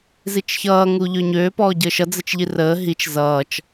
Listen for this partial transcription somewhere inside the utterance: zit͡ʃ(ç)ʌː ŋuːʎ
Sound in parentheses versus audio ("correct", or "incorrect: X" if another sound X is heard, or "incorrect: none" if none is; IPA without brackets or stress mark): correct